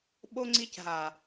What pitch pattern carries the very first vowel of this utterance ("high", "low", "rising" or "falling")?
high